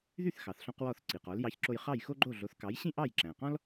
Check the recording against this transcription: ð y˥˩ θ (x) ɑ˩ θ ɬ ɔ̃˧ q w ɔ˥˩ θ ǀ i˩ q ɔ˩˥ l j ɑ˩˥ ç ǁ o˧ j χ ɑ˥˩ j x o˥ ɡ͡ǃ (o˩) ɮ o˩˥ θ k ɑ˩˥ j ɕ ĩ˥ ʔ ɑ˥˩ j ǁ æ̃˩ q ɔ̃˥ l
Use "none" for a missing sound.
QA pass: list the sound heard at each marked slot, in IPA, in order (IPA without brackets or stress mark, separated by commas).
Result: x, o˥˩